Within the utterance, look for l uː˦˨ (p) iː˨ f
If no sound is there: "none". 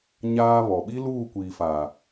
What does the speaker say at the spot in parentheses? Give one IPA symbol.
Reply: kʷ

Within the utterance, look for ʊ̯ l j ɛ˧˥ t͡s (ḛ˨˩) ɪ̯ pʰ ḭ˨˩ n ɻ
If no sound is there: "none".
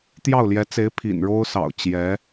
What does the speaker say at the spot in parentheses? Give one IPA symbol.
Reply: e˧˥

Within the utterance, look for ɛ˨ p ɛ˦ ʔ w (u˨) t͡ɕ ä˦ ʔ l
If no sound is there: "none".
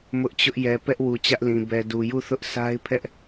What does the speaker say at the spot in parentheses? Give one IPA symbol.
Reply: u˨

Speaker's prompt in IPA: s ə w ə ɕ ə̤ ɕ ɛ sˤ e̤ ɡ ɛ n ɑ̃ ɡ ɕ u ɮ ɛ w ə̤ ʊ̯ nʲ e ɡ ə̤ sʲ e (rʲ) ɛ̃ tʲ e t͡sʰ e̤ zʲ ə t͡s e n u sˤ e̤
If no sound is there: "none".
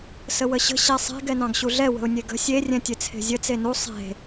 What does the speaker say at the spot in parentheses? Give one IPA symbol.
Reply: rʲ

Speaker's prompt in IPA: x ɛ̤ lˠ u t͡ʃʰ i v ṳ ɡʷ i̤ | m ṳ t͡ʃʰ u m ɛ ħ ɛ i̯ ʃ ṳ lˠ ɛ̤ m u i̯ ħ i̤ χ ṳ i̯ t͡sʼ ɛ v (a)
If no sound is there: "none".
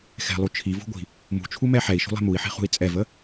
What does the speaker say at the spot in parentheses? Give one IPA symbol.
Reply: ə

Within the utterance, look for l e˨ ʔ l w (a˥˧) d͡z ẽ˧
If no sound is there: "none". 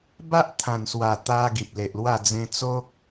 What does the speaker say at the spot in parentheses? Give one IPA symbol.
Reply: a˥˧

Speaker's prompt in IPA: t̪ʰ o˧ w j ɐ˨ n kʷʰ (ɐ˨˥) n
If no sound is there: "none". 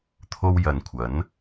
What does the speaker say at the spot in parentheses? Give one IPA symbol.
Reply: ɐ˨˥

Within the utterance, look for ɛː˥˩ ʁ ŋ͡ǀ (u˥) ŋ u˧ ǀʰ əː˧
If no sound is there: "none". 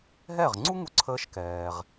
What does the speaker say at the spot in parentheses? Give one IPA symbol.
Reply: u˥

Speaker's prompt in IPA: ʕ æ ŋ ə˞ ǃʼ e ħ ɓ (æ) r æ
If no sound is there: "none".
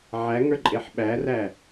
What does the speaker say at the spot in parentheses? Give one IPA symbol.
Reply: æ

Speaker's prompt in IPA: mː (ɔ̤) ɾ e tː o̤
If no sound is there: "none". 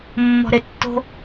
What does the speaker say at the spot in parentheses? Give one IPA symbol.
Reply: ɔ̤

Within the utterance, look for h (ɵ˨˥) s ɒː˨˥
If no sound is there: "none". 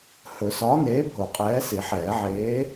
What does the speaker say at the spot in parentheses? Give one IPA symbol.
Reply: ɵ˨˩˦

